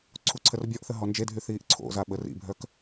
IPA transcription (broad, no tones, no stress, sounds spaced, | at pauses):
ǀʰ u ǀʰ ə r bʲ ɔ ʔ θ ə ɦ ɔ n d͡ʒ e dʱ y θ iː ʔ ǀʰ o̰ z a ɓ ə r ḭ bʱ œ k